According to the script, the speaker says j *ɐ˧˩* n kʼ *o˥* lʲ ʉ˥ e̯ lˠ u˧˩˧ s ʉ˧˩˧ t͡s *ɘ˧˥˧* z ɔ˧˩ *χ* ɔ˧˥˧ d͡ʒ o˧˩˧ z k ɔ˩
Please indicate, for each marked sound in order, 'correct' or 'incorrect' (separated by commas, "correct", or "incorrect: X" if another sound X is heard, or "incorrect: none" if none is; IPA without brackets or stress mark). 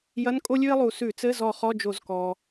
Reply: incorrect: ɐ˧˥˧, correct, correct, correct